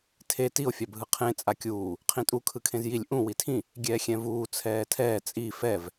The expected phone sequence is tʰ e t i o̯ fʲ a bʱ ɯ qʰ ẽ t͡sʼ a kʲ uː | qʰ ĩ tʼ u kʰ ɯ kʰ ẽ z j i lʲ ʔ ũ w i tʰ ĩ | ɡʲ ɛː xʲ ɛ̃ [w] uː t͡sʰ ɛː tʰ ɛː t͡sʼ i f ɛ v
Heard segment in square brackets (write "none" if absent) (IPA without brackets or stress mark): v